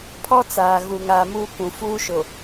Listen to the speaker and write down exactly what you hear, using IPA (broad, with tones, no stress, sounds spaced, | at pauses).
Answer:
pʰ ɔ˦ t͡s aː˨ ɣ u˨ ŋ aː˨ m uː˦ k ũ˨ f uː˦ ʃ ʊ˨